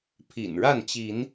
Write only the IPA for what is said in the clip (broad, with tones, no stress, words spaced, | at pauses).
pʰḭ˨˩nɻa˥˨nt͡ɕi˨˦n